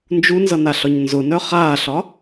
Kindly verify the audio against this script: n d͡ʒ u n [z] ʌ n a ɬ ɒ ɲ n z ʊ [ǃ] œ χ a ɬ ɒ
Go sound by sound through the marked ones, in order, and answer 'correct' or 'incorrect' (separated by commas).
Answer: correct, incorrect